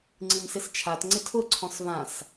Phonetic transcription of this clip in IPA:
ŋ͡ǀ i m s ɪ s t͡ʃʰ a t ŋ͡ǀ ɪ tʰ ʊ ǀʰ ɔ̃ s v ã s

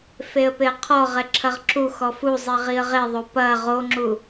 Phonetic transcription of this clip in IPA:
f e ə̯ p e ə̯ qʰ ɔ ʁ ɛ ǁʰ ɐ ʁ ǁ u x ɔ f u zˤ i ʁ i ə̯ ʁ e ðˤ o p ɐ ʁ o ŋ͡ǁ u

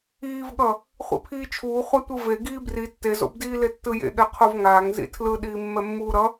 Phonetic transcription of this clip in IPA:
iː v ɠ ʌ | χʷ ḭ pʰ iː t͡ʃʰ uː χʷ a tʷ ɯ v e ɡ iː b r i tː e z o̰ b d iː l e tː ɯ j ḛ ɠ ɛ qʰ o v ŋ aː ŋ z ḭ tʰ l ɯ ɗ iː mː ɛ mː uː ɾ ʌ

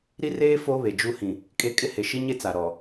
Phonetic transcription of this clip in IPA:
ɾ i˦ r eː˦ f o˦ β e˨ d͡ʒ u˦ h ĩ˨ | kʼ e˦ kʼ ɪ˦ h e˨ ʃ i˦ ɲ e˦ t͡s a˨ ɾ ɔ˨

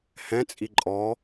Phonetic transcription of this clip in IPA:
h ɛ̃ t͡sʼ i ǃʼ ɔ

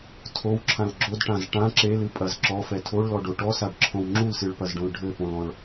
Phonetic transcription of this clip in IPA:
tʰ o w ǁʰ ã l ɡ͡ǁ o d ʈ ã z ʈ ã ǁ e l ɨ pʼ ɐ z ǁ ɔ f ɛ tʰ o ɭ l ɔ ɖ o ʈ ɔ s a ɖ ǁʰ õ w ŋ͡ǁ u l s ɨ ɭ p ɐ z ɖ õ l ɖʱ ɘ p õ l ɔ̃ ɭ

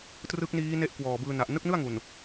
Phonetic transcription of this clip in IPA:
t r ɯ˦˥ k̚ n iː˦˥ n e˦˥ ʔ k w ɔː˨˩ b ɯː˧ n a˨˩ ʔ n ɯ˦˥ k̚ n ɯ˥˩ a̯ ŋ u˨˩ n

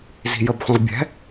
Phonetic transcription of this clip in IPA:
z i̤ j ə b χʷ ĩ ʁ bʲ ɛ̤

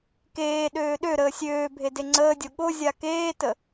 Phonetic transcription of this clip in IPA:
k eː ɗ øː ɗ ø ɾ əː sʲ øː bʱ e d e ŋ͡ǀ əː dʲ o ɠ o zʲ a k eː t ə

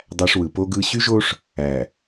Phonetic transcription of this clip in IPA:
dˤ æ˦ ʂ w ɯ˨ p o˦ ɡ ɯ˦ ɕ y˦ ʒ o˦ ʂ | æ˨

